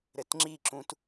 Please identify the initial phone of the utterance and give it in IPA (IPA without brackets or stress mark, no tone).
ɾ